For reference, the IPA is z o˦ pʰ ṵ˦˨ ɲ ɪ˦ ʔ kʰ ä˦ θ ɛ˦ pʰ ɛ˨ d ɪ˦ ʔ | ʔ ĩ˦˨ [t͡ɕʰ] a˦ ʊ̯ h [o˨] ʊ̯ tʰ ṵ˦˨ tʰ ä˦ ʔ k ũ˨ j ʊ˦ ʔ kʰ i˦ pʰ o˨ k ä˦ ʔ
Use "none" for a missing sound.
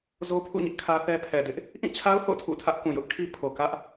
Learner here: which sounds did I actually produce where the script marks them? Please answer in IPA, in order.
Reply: t͡ɕʰ, o̰˦˨

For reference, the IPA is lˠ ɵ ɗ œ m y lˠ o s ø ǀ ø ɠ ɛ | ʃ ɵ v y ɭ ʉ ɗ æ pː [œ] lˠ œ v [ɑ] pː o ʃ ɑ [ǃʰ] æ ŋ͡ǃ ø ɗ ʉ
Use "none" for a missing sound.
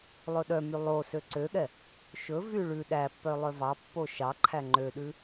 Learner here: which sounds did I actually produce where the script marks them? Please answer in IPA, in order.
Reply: œ, ɑ, ǃʰ

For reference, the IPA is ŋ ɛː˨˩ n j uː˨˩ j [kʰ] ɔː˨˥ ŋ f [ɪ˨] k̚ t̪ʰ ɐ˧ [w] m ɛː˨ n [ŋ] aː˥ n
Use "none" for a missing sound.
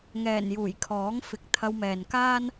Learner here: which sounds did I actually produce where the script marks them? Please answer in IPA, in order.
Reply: kʰ, ɪ˨˥, w, k

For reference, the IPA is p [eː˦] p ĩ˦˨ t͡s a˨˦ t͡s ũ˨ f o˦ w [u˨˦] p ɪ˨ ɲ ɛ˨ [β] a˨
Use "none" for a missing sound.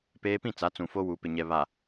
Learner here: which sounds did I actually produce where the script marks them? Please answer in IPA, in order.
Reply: eː˦, u˨˦, β

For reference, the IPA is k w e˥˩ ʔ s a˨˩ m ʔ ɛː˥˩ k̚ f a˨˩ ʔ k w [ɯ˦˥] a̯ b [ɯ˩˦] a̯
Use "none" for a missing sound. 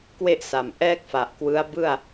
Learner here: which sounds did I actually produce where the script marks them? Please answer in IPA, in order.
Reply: ɯ˦˥, ɯ˥˩

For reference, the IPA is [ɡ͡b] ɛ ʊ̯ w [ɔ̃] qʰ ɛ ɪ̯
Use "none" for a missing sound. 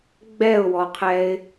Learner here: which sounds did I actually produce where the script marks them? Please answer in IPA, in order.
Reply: ɡ͡b, ɔ

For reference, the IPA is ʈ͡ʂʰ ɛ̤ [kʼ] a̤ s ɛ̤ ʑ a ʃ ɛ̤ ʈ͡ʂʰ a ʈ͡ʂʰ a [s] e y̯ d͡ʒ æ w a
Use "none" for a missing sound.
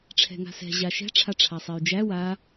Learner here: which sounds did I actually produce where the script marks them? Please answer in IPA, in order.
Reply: ŋ, sˤ

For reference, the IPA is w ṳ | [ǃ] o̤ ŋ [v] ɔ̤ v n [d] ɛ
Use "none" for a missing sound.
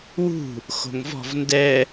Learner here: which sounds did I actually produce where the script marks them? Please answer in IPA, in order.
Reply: x, v, d

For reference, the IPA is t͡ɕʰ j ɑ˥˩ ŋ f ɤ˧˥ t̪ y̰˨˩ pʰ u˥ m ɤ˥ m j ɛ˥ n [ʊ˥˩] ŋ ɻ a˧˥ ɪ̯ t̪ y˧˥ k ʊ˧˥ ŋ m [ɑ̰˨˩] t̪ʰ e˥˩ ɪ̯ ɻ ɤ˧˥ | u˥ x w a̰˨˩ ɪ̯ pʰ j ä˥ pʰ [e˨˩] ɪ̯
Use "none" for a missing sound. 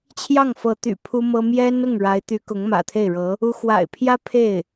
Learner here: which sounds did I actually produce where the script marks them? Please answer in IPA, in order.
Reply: ʊ˥˩, ä̰˨˩, e˥˩

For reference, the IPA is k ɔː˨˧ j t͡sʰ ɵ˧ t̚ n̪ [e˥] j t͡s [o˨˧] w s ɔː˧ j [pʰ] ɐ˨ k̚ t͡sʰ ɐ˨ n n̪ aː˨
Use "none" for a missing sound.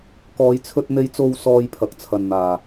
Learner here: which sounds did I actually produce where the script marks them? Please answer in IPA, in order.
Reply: e˧, o˧, pʰ

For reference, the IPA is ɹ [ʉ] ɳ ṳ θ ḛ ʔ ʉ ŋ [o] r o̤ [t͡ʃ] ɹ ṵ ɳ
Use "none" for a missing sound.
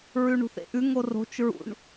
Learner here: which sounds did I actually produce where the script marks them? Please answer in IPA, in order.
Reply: ʉ, o, t͡ʃ

